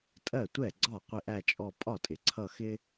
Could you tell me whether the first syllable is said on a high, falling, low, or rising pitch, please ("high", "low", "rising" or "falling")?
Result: falling